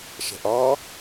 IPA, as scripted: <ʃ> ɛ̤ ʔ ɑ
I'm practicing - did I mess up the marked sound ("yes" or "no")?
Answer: no